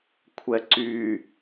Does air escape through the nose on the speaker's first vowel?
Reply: no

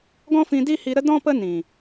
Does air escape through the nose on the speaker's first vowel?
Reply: yes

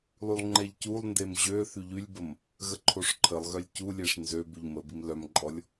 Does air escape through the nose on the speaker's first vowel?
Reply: no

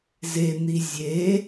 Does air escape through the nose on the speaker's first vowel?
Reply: no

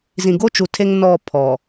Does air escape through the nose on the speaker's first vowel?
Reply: yes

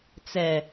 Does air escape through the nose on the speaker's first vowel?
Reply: no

